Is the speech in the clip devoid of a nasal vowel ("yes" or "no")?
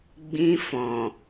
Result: no